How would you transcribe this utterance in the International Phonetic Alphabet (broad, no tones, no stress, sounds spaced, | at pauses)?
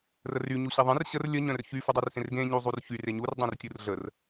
r ə r y ɲ u ɕ e ðˤ ẽ r ɕ ə r lʲ ə ɲ œ̃ r ç y f u dˤ œ r s ẽ r ɡ ẽ ɲ u zˤ u r ç y r e ɲ u r dˤ ẽ r tʲ u r ɮ ə r